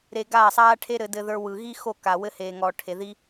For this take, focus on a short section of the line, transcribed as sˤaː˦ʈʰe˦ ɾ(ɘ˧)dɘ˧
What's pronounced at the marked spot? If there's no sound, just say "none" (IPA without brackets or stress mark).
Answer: ɘ˧